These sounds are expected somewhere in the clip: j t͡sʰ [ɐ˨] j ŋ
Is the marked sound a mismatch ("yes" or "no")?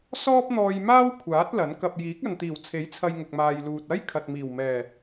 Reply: yes